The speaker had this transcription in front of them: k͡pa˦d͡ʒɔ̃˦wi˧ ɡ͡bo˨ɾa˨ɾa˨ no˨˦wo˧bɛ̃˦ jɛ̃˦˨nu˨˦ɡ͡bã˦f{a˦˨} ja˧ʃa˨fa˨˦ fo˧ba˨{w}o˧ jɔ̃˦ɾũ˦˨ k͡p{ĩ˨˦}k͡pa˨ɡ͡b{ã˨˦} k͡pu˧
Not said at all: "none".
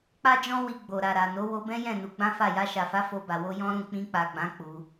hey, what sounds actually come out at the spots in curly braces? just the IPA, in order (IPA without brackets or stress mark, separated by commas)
a˦˨, w, ĩ˧, ã˨˦